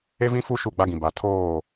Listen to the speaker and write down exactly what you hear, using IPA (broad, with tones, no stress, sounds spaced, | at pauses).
e˦ v ĩ˦ f u˦ ʃ u˦˨ ɡ͡b a˦ ɡ ĩ˨ b a˨ tʰ oː˦˨